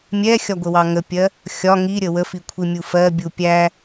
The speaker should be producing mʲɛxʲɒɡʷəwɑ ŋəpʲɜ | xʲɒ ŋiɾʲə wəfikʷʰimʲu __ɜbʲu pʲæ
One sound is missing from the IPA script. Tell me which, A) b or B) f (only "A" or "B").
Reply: B